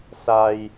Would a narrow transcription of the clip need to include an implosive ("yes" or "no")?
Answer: no